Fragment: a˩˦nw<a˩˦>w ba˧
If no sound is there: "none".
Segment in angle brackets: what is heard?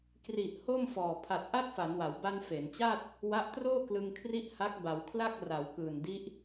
a˩˦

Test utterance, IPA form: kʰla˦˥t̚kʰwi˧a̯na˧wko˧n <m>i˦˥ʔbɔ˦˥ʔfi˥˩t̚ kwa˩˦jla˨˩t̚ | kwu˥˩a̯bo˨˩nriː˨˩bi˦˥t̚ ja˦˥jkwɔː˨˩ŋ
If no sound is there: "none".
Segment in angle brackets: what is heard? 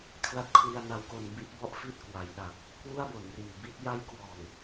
b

